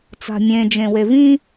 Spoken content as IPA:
t͡sa̤mʲẽ d͡ʒẽwevĩ

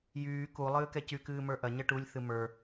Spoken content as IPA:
jyː ku lˠɨːkɛcy kɨːmə˞ʔɐ ɲɐʈulʲ θɨmə˞

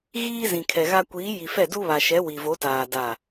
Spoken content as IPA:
ɣiː˦zĩ˨kʰɛ˨ɣa˦ kʷiː˨˦ji˨fɛ˦˨ du˦βa˨ʃɛ˨˦ wi˨vo˨˦taː˨ da˦˨

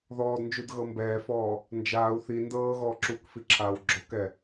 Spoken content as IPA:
ðɔːdnd͡ʒudɣɤ mbɛːfɔː | nd͡ʒaːu̯ θi ndɤːɣɔː ǁukfiǁʰaːw ɡ͡ǁɔkɛ

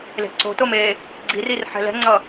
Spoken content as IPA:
le̤ǀo̤tom e | ɡ͡ǀirir ħɛ̤lɛ̤ŋ͡ǀʌ

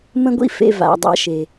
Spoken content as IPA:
mə̃˦ɡʷḭ˦ fḛ˧va̰˨ dˤa̰˧ʃe˨

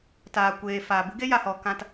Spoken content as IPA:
taː˨kʷeː˨ faː˨bɨ˦ɡe˦ ja˨hɔ˨ kã˧t

